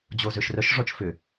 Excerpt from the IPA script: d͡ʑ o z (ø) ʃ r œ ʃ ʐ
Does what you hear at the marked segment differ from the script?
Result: no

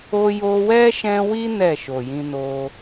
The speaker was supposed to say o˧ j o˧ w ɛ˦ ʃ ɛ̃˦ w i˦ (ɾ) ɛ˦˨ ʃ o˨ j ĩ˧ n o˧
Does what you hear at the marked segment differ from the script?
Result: yes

